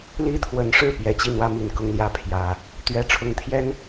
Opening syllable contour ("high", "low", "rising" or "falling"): high